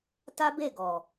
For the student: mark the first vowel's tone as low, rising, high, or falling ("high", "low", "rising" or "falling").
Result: high